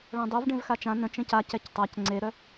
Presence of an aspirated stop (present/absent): absent